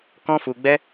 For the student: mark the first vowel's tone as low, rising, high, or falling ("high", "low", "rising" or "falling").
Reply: high